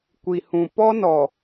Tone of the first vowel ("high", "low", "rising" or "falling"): low